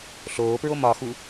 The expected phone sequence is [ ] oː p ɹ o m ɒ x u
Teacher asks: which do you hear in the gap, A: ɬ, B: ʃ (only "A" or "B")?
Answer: A